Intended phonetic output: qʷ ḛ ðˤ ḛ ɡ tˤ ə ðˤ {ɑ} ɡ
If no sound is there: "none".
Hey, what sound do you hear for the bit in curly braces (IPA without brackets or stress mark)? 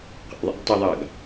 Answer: ɑ